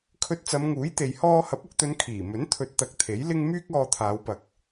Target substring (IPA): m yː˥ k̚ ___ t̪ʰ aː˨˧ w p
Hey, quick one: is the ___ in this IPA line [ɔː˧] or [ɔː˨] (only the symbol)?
ɔː˧